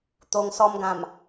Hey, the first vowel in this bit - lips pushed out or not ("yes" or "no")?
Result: yes